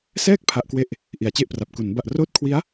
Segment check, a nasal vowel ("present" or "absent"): absent